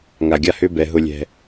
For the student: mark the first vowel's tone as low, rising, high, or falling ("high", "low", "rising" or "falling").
low